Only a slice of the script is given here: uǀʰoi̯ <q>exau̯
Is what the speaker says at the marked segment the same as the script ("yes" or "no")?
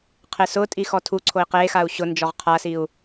yes